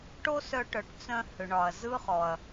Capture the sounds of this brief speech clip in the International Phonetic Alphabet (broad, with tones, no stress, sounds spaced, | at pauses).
ʈ o˥ s œ˧ ʈ œ˩˥ ʈ t͡s œ̃˧ h ʏ˩ ɳ ɒ˩ ɐ̯ z ɯ˥ χ ɔ˩ ɐ̯